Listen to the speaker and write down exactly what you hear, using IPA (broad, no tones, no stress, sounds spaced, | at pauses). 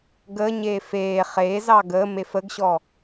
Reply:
ɡ ə ɲ eː f eː χ e z ɑ ɡ ə m e f ə ɡ ɕ ɔ